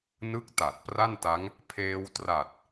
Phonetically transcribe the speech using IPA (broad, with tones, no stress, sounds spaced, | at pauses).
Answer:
n ɯ˥˩ k̚ t a˨˩ t̚ p r a˥˩ n t a˦˥ ŋ | pʰ eː˧ w t r a˨˩ t̚